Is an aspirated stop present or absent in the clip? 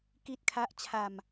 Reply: present